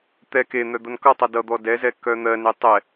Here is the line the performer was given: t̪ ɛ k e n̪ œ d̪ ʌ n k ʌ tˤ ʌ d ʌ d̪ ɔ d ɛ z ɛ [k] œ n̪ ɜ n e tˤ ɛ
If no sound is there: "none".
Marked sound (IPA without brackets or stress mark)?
k